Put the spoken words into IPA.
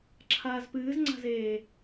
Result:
ǁʰaːzpɨːzŋ͡ǀa̤zeː

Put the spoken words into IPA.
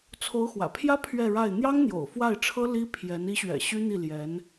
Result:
t͡sʰo˧˥ʊ̯xwä̰˨˩pʰjä˥ pʰɥɛ˥˧ɻa˥˩ɪ̯ n̪jɑ˥ŋn̪jo̰˨˩ʊ̯ fwa˥˩ɪ̯ʈ͡ʂʰɤ˥ li˥pʰjɛ˧˥n i˧˥ɕɥɛ̰˨˩ ɕy˥n̪i˥˩ ljɛ˧˥n

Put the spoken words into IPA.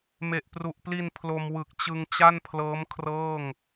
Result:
me˨˩ʔpru˨˩ʔpli˧n pʰlo˧mwɯ˨˩k̚ t͡ɕɯ˧ŋt͡ɕa˥˩npʰlɤː˦˥m kʰrɤː˥˩ŋ

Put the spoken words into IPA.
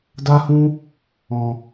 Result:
da˦hũ˦ | ɔ̃˧

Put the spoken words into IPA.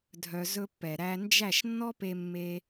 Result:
dʱœ˧ zɵ˧pːɛ˨ɾæ˧nd͡ʒæ˦˨ʃ nːɔ˦pe˧mːe˧

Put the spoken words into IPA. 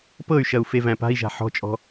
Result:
pɤy̯ʃɐu̯ fevæ̃pa̤i̯ʒa̤ ħɔ̤t͡ʃʼɔ̤

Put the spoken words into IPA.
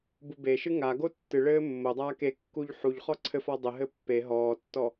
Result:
bubeʃɨ ŋaɡo tːɨɭɘː mːodˤaː kekːuʎ ħuʎ χɔǀʰɘfɔ dˤɘɦɘ pːe ɦɔːtːɔ

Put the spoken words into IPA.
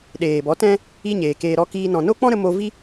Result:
ɗeː˨bɔ˨˦ tɛ̃˦ | i˦ɲeː˨keː˧ ɾɔ˧kiː˧ nɔ̃˨no˦k͡pɔ̃˦ɾə˧ mo˧ vi˦

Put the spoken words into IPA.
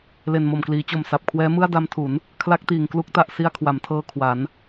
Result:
le˨˩n mo˨˩mkliː˩˦t͡ɕo˨˩m sa˨˩p̚kʰwɛː˦˥ mɯ˥˩a̯da˦˥mtʰu˩˦n | kʰla˦˥k̚tiː˨˩ŋklu˦˥k̚ ta˨˩ʔsi˧a̯ kʰwa˩˦mtʰɤː˧ kʰwa˩˦n

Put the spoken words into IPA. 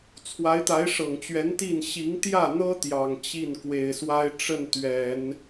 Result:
t͡sʰwa˧˥ɪ̯t̪a˧˥ɪ̯ʂɤ˨˩ŋt͡ɕɥɛ˧˥n t̪i˥˩n ɕi˧˥ŋ t̪jä˥˩n̪ɤ˥ t̪jɑ˨˩ŋt͡ɕi˥˩n kwe˨˩ɪ̯swa˥ɪ̯ʈ͡ʂə˥˩n t̪ɥɛ˨˩˦n

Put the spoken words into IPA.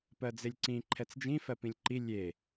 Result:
pɜd͡zelʲǀĩ ǃʰɛt͡sd͡ʒĩfɜ pĩlʲǃi lʲe

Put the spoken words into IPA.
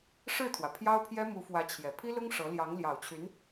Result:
ʂɻ̩˥˩t̪ʰwä˩ pʰjɑ˥ʊ̯pʰjɛ˥ mu˧˥fwä˧˥ t͡ɕʰjɛ˨˩ pʰi˥lʊ˥ŋ ʂɤ˧˥ ljɑ˧˥ŋljɑ˨˩ʊ̯t͡ɕʰy˧˥n

